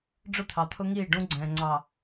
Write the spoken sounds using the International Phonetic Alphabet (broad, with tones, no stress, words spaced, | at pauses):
ɖ͡ʐʊ˦t̪ʰɑ˨t̪ʰʊ˦ŋiː˦˨ ɖũ˦ɡ͡ǀɛ̃ː˨ ŋ͡ǀɑ˨